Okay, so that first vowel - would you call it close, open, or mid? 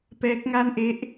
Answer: mid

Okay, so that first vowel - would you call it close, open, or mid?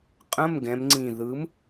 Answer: mid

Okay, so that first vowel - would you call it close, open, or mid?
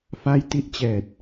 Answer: open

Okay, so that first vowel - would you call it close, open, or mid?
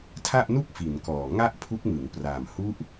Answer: open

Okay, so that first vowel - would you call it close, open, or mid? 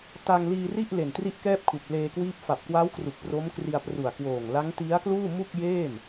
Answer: open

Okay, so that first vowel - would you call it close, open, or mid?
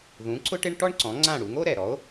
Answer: close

